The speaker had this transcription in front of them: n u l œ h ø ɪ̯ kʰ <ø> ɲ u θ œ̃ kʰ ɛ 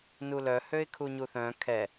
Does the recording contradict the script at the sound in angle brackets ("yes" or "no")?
yes